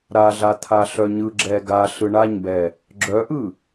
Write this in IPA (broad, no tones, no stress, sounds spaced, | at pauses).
ɾ a ɮ a t̪ʰ a ɬ œ ɲ ɯ ɡ͡ǁ ɛ ɡ a ɬ ɯ ɳ a ɲ b ɛ | ɡ͡ǁ œ ʔ ɯ